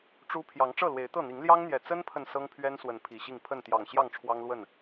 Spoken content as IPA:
ʈ͡ʂ u˦ pʰ j ɑ˨˦ ŋ ʈ͡ʂ ɤ˥˨ l w e˨˦ ɪ̯ t̪ ɤ˥˨ n̪ i˨˦ ŋ l j ɑ˦ ŋ n̪ j ɛ˨˩ t͡s ə˦ n pʰ ə˨ n s ɤ˦ ŋ pʰ ɥ ɛ˦ n s w ə˨˦ n pʰ i˨˩ ɕ i˥˨ ŋ pʰ ə˥˨ n t̪ j ɑ˨˩ ŋ ɕ j ɑ˥˨ ŋ ʈ͡ʂʰ w ɑ˦ ŋ l w ə˥˨ n

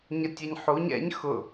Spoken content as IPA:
ɲ ə tʲ ɛ ɲ ħ u ɲ ɛ̰ ɲ x ʊ

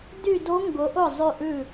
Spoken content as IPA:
d y˥˧ d o˦˥ ŋ ɡ ʊ˨˥ ʔ ʊ˥˩ zˤ ʉ˥˧ ʔ ʉ˥˩

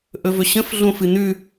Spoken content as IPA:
ʔ ɵ v ɵ ɕ ə̃ f ɮ õ f ɨ n̪ ʉ

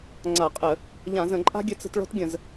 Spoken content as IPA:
ŋ͡ǀ a˧˩˧ qʼ ə˧˩˧ | ʎ ã˧˩˧ z ə̃˧˩˧ ǃʼ a̤˦ ɡʲ ɘ˦ t͡s ə̤˦ t ɭ ɔ̤˦ t ɡʲ ə̃˧˩˧ z

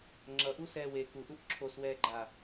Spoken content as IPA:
ŋ͡ǁ ʌ ʔ u s ɛː w e k u ʔ u ʔ ǁʰ o s w ɛː ɡ͡ǃ a

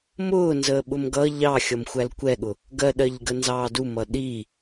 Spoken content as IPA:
m ʊː n z əː ɓ ʊ m ɡ ʌ ʎ ɑ xʲ ʌ m xʷ æ l kʷ ɛ ɠ ʊ | ɡ ɜ ɗ ɜ ʎ ɡ ə n z ɑː d u m ʌ ɗ i

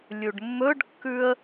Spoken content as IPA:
lʲ u ɖ mː ɵ ɖ kː ʉ ə̯

